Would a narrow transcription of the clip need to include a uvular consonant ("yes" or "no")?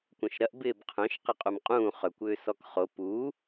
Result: yes